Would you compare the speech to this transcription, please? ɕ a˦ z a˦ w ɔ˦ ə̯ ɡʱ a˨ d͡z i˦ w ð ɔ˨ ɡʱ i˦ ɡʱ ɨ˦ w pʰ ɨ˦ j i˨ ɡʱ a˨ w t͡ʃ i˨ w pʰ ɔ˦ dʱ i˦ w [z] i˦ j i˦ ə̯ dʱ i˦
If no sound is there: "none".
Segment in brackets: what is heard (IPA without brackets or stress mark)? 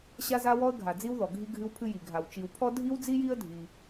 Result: d͡z